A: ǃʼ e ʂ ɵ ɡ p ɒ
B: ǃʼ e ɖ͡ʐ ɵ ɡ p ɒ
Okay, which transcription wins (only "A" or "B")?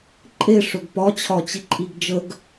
A